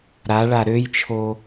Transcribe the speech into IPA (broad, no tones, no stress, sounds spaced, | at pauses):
ɾ a ɭ a ɾ ø j t͡ʃʰ o